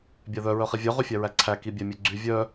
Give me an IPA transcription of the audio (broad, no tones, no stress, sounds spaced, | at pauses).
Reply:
bʲ æ ð œ ɹ œ χ i vʲ œ ʁ y fʲ æ ɹ æ ǀʰ æ k i bʲ æ mʲ ø ɡ͡ǀ y vʲ œ